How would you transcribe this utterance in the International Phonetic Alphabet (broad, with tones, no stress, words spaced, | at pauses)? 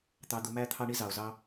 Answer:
t̪ɑ˧d̪ʊ˧mæ˦ t̪ʰɑ˦ɳi˦zɑ˨o̯zɑ˦